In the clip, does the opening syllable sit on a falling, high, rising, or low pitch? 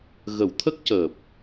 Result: low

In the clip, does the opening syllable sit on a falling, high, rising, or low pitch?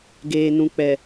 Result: low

